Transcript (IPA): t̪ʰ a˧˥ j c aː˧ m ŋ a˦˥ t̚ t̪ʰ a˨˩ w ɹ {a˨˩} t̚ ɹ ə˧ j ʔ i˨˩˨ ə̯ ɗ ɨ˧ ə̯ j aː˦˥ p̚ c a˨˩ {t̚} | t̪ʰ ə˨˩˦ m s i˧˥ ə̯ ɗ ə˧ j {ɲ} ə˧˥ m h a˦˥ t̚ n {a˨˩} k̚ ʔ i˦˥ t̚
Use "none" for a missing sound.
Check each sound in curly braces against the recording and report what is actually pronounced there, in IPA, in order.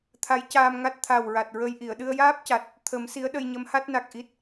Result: a˨˩, t̚, ɲ, a˨˩

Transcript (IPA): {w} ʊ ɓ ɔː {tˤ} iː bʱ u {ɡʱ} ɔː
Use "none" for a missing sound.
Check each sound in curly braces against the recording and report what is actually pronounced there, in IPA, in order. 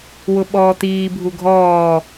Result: w, t̪, ɡʱ

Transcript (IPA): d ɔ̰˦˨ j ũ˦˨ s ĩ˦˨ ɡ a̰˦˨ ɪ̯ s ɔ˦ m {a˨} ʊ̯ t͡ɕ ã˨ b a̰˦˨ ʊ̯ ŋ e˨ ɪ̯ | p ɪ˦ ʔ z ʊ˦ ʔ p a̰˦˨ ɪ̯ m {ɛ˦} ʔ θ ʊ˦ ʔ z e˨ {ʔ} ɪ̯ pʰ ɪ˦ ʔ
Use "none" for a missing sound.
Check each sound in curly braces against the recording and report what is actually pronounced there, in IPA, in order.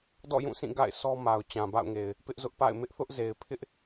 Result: a˨, ɪ˦, none

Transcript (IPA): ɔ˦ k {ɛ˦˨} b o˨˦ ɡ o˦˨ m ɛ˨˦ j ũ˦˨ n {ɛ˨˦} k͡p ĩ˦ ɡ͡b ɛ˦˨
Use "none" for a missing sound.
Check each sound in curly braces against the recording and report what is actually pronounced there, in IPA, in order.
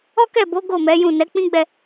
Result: ɛ˦˨, ɛ˨˦

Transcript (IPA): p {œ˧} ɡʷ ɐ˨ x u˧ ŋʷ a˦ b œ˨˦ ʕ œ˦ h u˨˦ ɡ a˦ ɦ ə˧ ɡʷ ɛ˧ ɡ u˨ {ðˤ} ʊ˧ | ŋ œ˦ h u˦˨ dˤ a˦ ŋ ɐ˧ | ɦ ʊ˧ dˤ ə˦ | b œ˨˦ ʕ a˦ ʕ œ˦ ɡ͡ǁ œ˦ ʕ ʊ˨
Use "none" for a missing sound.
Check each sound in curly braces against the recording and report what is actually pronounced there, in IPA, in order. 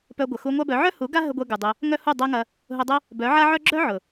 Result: œ˧, dˤ

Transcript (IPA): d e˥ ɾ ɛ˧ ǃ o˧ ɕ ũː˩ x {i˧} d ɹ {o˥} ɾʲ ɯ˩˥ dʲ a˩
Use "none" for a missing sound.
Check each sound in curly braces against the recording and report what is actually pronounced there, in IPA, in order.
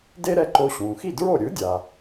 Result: i˥˩, o˥˩

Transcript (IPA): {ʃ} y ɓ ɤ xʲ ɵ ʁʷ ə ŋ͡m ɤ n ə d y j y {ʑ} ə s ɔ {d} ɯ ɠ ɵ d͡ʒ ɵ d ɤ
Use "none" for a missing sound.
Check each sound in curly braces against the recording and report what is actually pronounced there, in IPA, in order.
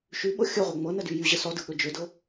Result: ʃ, ʑ, d

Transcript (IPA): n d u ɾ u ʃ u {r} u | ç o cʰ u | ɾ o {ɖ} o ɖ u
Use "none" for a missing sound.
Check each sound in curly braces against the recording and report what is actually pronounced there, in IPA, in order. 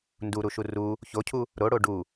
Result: r, ɽ

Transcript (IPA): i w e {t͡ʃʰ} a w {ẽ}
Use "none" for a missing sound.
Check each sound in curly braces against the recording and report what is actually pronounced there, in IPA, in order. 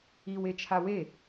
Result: t͡ʃʰ, e

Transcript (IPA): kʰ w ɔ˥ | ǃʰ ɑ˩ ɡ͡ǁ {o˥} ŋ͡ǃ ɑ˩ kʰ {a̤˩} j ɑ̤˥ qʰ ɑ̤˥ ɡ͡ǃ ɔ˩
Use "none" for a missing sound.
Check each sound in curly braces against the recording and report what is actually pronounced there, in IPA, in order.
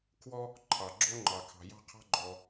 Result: o˥, ɑ̤˩

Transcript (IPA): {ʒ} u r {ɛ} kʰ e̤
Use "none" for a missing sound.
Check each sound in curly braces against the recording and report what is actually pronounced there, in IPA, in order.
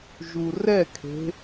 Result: ʒ, ɛ

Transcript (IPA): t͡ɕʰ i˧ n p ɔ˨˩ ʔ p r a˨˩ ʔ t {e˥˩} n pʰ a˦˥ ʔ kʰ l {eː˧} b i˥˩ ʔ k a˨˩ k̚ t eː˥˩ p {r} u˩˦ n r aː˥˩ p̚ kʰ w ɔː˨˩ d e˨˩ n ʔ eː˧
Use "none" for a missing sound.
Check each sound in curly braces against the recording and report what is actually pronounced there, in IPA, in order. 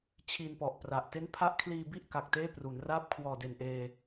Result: e˦˥, iː˧, r

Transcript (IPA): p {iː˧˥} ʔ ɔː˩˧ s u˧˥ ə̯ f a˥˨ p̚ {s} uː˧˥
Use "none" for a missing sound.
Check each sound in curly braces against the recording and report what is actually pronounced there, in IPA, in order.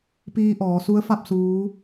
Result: iː˧, s

